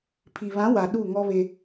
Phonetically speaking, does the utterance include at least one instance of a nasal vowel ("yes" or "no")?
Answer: yes